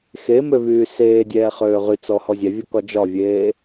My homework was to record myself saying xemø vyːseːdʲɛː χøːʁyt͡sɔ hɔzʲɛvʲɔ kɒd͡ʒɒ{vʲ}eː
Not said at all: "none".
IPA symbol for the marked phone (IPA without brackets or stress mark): vʲ